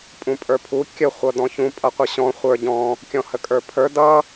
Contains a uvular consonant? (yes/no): yes